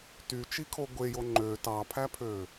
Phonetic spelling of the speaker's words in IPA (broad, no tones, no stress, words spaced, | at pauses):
tyt͡ʃikʰo ɡʷejo ŋ͡ǃø tɑpʰæpʰø